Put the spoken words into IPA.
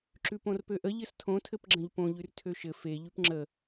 ǁ ʉ p õ r p ø ʔ ə ʎ ɘ s tʰ õ tʰ ɘ p ɡ͡ǁ ə̃ ʎ p õ ʎ ʉ r tʰ ø ʃ ɘ f e ʎ ʉ p ŋ͡ǁ ə

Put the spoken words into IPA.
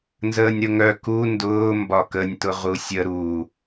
n z əː nʲ ɾ ʊ ŋ œ k u n d ʊː m b ɒ k ə nʲ t ʊ ʁ u sʲ ə ɾ u

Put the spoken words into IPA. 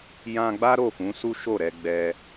j ã˧ ɡ͡b a˦ ɾ o˦˨ f ũ˨˦ s u˦ ʃ o˦˨ ɾ ɛ˧ ɡ͡b ɛ˧

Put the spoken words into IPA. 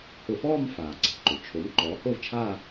h ʊ˧˩˧ f ɔː˥˧ m f aː˩ ǀ e̤˩ ǃ ʊ˩ t͡ʃʰ o˩˥ m ǃ ɔː˩˥ h o˥˧ v t͡ʃʰ aː˥˧

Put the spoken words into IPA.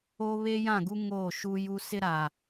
o˦ β e˦ j ã˦˨ ɡ u˦ ŋ oː˦˨ ʃ u˦ j u˦ s ɪ˦ ɾ a˨

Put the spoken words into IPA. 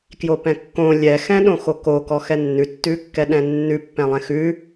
k j o p ɛ̃ kː õ lʲ ɛ x ɛ̃ ɗ õ x o k o k ɔ x ɛ nː ʉ tː ʉ kː ɛ ɗ ɛ̃ nː ʉ pː ɛ̃ lˠ ɛ̃ x ʉ

